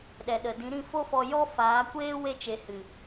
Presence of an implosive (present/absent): present